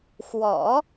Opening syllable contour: low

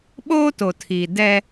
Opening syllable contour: high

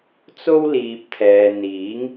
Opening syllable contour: high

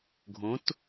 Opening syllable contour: rising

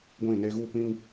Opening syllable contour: falling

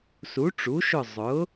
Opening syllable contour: rising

